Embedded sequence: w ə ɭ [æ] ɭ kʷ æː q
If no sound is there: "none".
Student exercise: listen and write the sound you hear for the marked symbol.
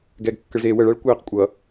æ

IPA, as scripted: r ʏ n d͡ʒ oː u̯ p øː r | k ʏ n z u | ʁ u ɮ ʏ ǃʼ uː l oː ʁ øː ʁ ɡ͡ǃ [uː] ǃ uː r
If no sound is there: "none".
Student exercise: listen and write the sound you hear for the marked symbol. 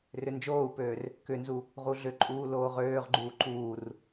uː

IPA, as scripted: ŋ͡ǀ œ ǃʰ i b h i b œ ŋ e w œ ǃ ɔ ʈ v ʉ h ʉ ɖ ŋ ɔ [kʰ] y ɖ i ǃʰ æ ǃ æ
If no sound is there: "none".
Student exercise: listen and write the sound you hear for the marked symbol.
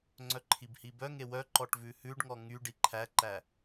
ŋ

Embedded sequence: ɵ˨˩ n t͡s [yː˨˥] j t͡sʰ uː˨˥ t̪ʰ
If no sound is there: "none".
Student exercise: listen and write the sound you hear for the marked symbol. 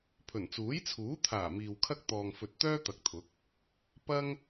uː˨˥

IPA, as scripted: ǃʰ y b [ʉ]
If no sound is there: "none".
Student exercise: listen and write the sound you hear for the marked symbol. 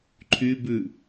ʉ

